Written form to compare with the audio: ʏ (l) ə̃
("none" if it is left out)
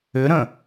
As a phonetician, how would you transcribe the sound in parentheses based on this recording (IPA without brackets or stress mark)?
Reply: ɾ